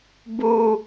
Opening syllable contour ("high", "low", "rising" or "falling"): low